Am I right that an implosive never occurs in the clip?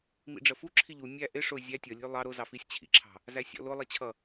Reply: yes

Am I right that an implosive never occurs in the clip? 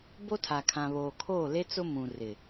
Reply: yes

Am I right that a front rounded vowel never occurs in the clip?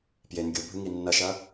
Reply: yes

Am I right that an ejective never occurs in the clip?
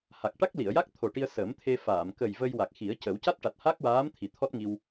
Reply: yes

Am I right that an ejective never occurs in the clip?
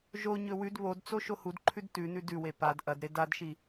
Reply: yes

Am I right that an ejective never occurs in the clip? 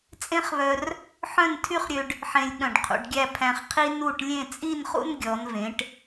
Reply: no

